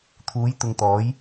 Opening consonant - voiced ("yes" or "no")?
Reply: no